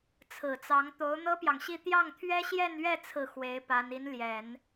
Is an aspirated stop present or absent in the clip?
present